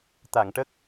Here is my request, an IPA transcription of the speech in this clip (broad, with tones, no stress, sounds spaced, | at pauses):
t̪ a˨˩˨ ŋ ʈ ə˦˥ k̚